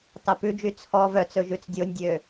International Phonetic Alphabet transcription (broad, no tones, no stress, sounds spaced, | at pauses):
t ɑ p ʉ d͡ʒ y t͡sʰ ɔ v œ t͡s ɵ ʒ ʉ t͡s dʲ o nʲ dʲ ø